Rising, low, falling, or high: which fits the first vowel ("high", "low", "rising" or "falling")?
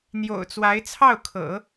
low